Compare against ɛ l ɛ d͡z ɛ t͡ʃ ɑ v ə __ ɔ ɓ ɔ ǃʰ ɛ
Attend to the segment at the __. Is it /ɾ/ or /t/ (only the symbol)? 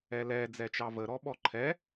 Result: ɾ